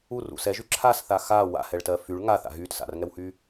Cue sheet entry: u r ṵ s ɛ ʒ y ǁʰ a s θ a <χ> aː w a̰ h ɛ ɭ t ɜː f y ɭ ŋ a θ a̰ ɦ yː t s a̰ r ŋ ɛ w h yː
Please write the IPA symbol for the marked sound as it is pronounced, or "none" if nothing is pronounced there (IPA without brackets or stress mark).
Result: x